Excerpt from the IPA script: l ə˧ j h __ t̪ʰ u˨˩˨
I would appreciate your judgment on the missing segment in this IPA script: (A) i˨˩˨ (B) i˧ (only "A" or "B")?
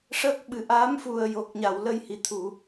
A